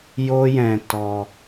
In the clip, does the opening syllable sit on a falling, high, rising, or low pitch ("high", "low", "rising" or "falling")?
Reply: high